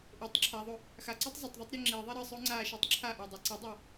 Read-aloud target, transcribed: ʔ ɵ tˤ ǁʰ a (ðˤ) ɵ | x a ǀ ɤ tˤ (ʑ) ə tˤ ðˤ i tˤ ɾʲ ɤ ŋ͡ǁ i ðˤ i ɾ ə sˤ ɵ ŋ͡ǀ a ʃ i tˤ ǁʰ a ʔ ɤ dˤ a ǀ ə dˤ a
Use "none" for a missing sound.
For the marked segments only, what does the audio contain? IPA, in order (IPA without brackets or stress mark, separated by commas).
ðˤ, zˤ